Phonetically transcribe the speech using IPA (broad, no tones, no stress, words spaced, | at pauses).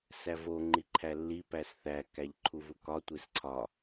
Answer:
sævo ŋ͡ǃiǃʰælːi pæsθæ kæʎǃʰuvukɒ tʷesǀʰɒ